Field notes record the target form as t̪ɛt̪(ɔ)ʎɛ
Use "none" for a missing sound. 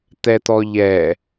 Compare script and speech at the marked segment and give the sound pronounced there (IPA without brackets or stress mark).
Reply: ɔ